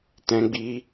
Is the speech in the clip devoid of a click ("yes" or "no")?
yes